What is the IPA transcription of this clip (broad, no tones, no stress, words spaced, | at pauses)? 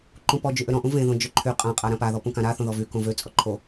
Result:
ǃũpɔ d͡ʒyʔøɾɔ̃ʔũ vẽðõ d͡ʒøǃʰy qʼãqʼa ɾãpaðɔpũ kãɾa θõðɔvy kõvøt͡sʼɔ ǃʰo